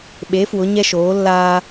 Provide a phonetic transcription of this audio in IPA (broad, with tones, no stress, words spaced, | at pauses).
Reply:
ɓe˧˥ fwʊ˧˥ɲɛ˥ʃoː˧˥ lːaː˥